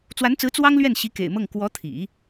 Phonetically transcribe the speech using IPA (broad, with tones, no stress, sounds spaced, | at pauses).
t͡s w a˧˥ n t͡s ɹ̩˧˥ t͡s w ɑ˥ ŋ l ɥ ɛ˥˩ n ɕ i˧˥ k ḛ˨˩ ɪ̯ m ɤ˥˩ ŋ k w ɔ˧˥ t̪ʰ ḭ˨˩˦